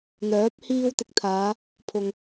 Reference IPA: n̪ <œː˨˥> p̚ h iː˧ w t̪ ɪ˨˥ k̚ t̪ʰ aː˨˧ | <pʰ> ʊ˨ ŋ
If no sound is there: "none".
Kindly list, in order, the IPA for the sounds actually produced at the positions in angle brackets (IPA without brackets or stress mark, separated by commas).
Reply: œː˨˥, pʰ